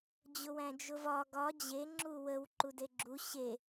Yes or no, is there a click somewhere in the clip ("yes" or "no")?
yes